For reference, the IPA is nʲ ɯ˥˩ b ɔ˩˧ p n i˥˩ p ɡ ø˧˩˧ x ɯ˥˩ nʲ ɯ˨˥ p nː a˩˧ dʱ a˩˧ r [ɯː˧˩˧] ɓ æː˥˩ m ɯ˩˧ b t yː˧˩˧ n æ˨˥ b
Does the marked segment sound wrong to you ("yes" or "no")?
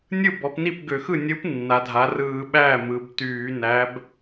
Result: no